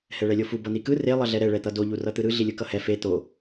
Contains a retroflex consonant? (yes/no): yes